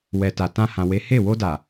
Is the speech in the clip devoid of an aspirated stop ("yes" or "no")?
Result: yes